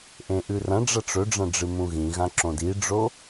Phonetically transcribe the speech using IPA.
ʔẽʔʉrɐ̃ɖ͡ʐɐ ʈ͡ʂɵɖ͡ʐɐ̃ ɖ͡ʐɨmũɣĩɣã ǁõdiɖ͡ʐo

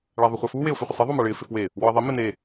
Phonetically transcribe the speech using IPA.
ɭaðˤʊχʷafu weʊ̯fɪχʷɪsˤi ðˤomaɭɪː fɪfwe | wɔɪ̯ðˤi mene

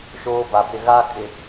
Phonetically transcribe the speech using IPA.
ʃoː˦ba˨bɪ˦˨ ɣa˦kʼɪ˨

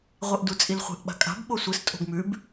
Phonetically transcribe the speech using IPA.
ʁʷeʔdut͡sʼilχʷe̤ʔ ɓa̤kʼa̤b ɓosʷɨs tʼo̤ɡmʉb

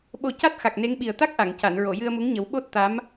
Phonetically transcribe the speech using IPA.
ɓo˨˩ ca˦˥t̚xa˨˩k̚ ne˧˥ŋɓi˨˩ə̯ t̪a˦˥k̚ʔa˨˩˨ŋ ca˨˩˨n ɹo˨˩˨jɨ˧ə̯mu˧˥ŋɲə˨˩˦w ɓo˦˥t̚t̪a˧˥m

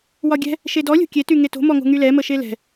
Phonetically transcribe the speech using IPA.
wɒɡʲɛ̤ | ʃedɔlʲo̤ kʲety ŋeto̤mɔŋo̤ ŋylɛmə ʃelɛ̤

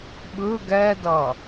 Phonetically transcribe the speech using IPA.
ɓɯ ɡɛdʌ

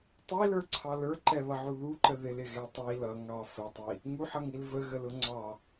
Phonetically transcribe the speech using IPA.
tˤilə˞ǀʰɑ lə˞ǃɛβʌʕu ðuǃə ðɪlɪɣɛ tˤi lʌ ŋɑ fətˤi | ŋuħʌŋil vəɣəlʊ ŋ͡ǀɑ

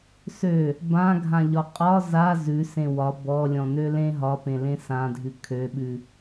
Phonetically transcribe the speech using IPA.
sø | bãɡʱãʎɒ qʼɒ za zʉsẽ wɒ bɔlʲɔ̃nø lẽ ɦɒpẽlẽ sãdʱʉ kʰøɓʉ

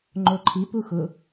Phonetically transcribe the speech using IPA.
ŋ͡ǃoǃʰipu xʊ

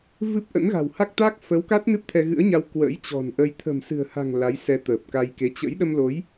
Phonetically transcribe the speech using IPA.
vɨ˦˥p̚ʔə̰˧˥nɣa̤˨˩w ha˦˥k̚t̪a˦˥k̚ fə˨˦wka˦˥t̚ nɨ˦˥p̚t̪ʰɛ˧ɣɨ̰˧˥ə̯ɲa˧w kwə̰ː˧˥jt͡ɕɔ̤˨˩nʔə˧j t̪ʰə̤˨˩m sɨ̤˨˩ə̯ha̤˨˩ŋ la˨˦j sɛ˧t̪əː˨˩p̚ka˧jke˨˦ t͡ɕə̰˧˥j ɗə˧mlo˨˦j

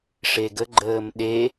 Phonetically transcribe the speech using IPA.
ʂeɡəɡ͡ǃəːm ɗe

